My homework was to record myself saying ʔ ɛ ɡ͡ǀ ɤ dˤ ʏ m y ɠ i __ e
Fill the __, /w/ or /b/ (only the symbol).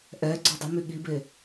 b